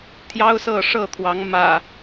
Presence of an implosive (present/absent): absent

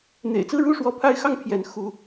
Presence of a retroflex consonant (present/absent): present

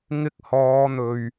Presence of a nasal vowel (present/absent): absent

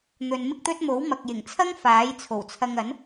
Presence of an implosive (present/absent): absent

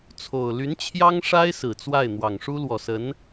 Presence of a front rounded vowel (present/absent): present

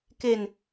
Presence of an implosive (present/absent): absent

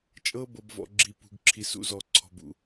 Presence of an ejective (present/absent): present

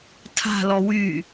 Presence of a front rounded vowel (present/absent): present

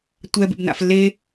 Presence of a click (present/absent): absent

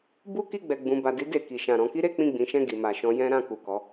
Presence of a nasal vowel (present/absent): present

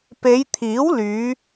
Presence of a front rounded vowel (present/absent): present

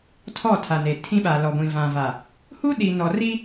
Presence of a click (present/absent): absent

